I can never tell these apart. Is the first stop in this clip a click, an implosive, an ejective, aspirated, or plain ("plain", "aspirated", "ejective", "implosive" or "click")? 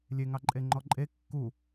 click